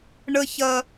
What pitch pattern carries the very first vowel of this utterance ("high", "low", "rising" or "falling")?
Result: high